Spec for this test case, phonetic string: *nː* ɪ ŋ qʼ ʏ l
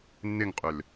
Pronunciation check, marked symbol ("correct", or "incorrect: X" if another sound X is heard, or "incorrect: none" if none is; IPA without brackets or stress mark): correct